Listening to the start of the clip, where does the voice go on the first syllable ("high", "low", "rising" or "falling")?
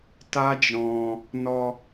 high